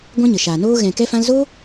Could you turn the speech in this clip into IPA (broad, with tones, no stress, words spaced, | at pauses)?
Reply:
ɡʷã˦ɲə˨ʃaː˨noː˦ ɣɛ̃˨kɛ˧ fã˧lzo˦